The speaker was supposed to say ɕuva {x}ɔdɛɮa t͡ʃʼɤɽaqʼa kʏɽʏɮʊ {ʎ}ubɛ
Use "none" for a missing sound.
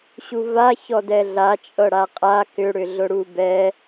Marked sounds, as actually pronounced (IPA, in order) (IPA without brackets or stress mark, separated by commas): ç, ɽ